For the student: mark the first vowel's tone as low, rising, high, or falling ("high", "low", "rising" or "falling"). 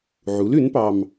rising